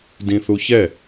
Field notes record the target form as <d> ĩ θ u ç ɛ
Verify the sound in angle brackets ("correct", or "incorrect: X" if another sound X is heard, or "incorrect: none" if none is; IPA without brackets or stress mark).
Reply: correct